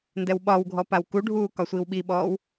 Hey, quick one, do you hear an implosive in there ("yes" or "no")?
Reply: yes